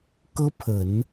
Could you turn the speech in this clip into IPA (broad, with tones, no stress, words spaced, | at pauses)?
kɤ˥pʰə˨˩˦n